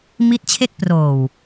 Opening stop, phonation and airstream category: plain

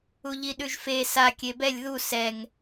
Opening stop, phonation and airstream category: implosive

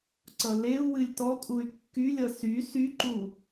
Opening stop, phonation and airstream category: click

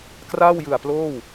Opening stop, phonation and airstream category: plain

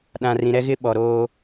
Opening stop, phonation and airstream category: implosive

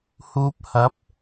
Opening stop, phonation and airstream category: plain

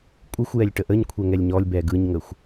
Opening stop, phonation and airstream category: ejective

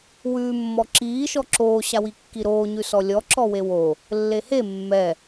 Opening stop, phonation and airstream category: click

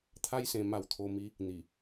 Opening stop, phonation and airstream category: aspirated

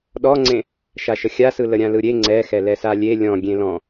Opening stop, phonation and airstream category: implosive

